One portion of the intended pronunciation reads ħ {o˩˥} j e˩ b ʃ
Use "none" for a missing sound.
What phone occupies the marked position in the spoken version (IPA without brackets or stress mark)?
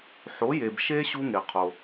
o˩˥